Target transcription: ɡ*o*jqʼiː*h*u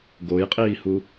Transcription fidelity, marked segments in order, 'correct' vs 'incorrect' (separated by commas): correct, correct